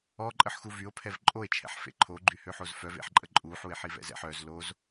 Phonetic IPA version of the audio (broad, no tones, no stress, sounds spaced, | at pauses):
ɔ ǃʼ ə ħ x u v y o̯ pʰ ɛ v ǃʼ o e̯ t͡ʃʰ ɛ̰ ħ f ḛ ǃʰ o ɡ͡ǃ y h ø ħ o z f œ v ḛ ħ ǃʼ ə ǃʼ u ħ u e̯ ħ i v ɛ̰ z ɛ̰ ħ œ z l o z